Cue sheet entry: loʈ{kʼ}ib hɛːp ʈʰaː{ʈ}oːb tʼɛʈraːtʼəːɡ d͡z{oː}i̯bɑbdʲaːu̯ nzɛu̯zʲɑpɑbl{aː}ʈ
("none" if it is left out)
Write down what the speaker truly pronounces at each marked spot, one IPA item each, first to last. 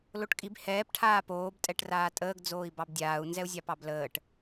kʼ, p, oː, əː

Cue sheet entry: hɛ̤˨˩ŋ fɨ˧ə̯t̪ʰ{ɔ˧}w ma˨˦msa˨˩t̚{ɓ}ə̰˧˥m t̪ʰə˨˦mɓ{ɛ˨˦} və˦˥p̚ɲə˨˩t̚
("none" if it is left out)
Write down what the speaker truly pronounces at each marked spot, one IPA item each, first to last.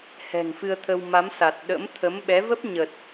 ə˧, ɗ, ɛ˨˦

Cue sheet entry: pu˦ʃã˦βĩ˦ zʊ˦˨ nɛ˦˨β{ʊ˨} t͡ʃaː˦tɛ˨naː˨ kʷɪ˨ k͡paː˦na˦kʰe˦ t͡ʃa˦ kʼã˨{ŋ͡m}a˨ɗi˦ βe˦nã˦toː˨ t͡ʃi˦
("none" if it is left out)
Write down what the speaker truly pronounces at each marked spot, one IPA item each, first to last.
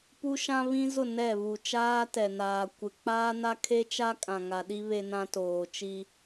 u˨, ŋ

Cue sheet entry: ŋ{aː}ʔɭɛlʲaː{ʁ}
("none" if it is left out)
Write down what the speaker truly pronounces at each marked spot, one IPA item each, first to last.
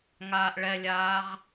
aː, ʁ

